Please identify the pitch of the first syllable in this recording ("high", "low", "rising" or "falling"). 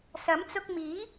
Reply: rising